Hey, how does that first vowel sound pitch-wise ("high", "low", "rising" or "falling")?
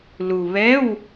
low